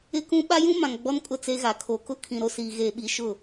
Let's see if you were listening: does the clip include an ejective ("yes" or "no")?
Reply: yes